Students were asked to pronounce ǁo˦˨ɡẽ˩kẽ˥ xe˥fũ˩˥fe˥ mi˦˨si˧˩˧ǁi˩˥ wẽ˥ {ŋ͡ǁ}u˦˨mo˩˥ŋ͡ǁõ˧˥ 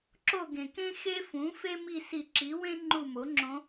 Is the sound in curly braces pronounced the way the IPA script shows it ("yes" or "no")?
no